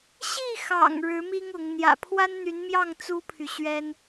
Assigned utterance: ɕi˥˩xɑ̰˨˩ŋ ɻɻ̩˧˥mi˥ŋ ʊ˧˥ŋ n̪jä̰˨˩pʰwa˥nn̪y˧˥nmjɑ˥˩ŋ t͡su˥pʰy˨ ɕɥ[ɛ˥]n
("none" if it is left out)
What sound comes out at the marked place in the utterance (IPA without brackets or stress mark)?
ɛ˥